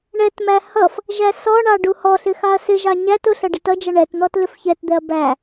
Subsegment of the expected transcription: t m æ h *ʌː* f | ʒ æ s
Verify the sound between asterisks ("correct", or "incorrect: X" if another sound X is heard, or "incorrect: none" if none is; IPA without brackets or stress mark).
incorrect: ʌ